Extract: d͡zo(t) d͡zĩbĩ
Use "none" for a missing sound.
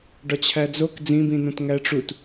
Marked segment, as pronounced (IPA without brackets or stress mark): k